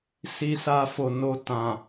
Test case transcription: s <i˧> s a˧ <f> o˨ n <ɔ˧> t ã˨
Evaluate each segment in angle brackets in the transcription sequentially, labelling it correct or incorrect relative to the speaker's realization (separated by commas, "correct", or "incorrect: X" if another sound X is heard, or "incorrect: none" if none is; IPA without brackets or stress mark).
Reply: correct, correct, incorrect: o˧